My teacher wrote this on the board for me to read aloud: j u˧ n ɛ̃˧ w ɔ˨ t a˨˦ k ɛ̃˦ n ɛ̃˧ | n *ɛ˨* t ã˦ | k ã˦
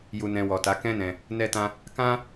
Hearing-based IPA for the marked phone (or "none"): ɛ˦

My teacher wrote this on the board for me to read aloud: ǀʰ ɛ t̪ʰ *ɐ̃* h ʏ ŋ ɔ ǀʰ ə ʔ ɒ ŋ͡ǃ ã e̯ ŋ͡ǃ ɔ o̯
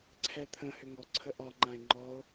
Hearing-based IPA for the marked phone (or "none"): ə̃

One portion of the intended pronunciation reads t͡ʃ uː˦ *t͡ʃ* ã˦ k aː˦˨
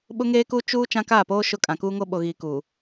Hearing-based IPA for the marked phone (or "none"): t͡ʃ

